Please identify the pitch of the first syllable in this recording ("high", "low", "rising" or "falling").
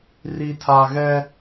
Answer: low